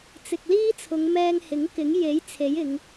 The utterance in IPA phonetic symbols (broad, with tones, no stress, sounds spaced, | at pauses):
t͡s ɪ˨ k̚ l iː˥ t͡sʰ ʊ˨˧ ŋ m ɛː˧ ŋ h ɪ˨˥ ŋ k ɪ˨˥ ŋ j e˨˥ j t͡sʰ e˨˥ j ɪ˨˧ ŋ